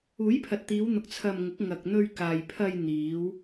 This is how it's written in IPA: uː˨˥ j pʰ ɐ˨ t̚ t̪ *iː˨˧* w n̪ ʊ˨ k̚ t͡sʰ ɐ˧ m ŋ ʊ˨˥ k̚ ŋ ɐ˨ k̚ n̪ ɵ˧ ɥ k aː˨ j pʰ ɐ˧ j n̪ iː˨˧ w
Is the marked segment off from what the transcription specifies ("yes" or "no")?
no